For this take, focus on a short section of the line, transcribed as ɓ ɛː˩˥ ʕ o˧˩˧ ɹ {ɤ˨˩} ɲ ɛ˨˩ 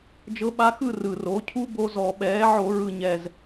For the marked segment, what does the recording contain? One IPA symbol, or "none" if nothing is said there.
ɯ˨˩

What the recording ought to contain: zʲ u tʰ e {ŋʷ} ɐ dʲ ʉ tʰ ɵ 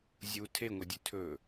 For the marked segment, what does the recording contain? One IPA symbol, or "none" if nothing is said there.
ŋʷ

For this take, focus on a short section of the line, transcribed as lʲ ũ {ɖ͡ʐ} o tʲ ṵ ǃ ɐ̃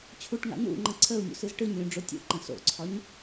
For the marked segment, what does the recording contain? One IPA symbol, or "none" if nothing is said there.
ɖ͡ʐ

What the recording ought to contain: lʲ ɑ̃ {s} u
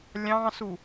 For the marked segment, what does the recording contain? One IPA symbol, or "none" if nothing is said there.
s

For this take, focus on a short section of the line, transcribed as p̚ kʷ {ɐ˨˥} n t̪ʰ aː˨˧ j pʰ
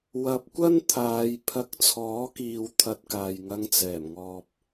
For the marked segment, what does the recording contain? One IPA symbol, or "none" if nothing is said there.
ɐ˥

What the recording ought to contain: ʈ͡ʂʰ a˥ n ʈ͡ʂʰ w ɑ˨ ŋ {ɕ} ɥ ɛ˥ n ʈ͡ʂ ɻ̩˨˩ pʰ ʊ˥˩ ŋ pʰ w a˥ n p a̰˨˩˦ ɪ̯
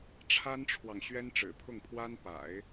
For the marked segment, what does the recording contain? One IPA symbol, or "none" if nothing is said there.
ɕ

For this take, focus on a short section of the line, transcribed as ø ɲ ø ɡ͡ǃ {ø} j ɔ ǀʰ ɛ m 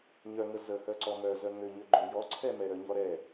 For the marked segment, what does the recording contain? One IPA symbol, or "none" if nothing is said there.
ø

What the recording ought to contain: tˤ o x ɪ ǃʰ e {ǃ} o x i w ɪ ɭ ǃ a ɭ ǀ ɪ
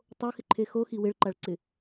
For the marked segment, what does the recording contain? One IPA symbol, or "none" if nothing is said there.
x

